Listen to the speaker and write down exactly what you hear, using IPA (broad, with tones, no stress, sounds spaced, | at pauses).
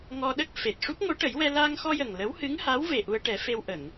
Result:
ŋ ɔ˧ ɗ ə˦˥ k̚ f e˨˩ t̚ ʂ u˦˥ p̚ ŋ o˧˥ ʈ ə˨˩˦ j w ɛ˧ l aː˧ ŋ x ɔ˧ j ə˨˩ ŋ l ə˧˥ w h ɨ˧˥ ŋ h a˧˥ w v e˨˩ ʔ u˧ ə̯ ʈ ɛ˨˩˦ f e˧ w ʔ ə˨˩˨ ŋ